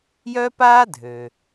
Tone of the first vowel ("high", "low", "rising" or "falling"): high